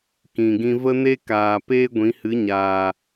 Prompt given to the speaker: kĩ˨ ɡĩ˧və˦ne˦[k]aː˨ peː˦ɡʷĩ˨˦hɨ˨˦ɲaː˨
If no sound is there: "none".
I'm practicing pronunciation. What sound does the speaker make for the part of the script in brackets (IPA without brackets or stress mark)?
k